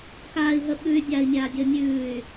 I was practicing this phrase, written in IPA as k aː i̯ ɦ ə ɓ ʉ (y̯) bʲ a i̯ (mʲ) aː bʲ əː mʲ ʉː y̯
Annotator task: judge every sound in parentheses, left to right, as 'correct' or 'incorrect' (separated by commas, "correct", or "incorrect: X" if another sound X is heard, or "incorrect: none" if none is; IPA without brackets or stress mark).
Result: correct, correct